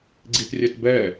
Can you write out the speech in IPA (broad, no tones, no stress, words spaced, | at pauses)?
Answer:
ɡ͡ǀitrʲɛtbɛ